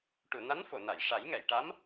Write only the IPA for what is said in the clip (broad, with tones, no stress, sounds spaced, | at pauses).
ʈ u˨˩˨ n a˧˥ n f o˨˩˨ n a˨˩˨ j ʂ a˨˩˦ j ŋ ɛ˨˩˨ j ʈ a˧˥ m